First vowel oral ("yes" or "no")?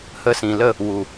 yes